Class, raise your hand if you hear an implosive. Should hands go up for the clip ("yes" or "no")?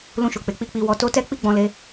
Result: no